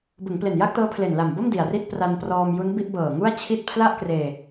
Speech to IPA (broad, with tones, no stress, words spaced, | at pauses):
bɯ˩˦ŋple˨˩n ja˥˩k̚tɤː˦˥pʰle˨˩n la˨˩mbo˥˩m di˨˩a̯ri˥˩t̚ pra˧nprɔː˧m ju˦˥nbi˥˩ʔbɤː˨˩ ŋu˥˩a̯t͡ɕʰi˥˩t̚ pʰla˥˩ʔkreː˧